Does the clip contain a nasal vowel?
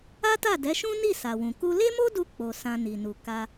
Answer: yes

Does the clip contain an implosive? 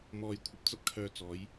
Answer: no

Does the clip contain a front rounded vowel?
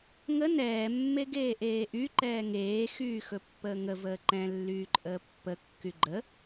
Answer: yes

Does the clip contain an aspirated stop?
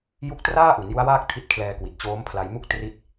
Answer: yes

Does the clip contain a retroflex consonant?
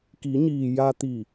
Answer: no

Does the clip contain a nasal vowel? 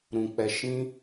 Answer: yes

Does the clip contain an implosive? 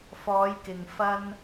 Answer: no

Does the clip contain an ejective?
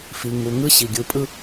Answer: yes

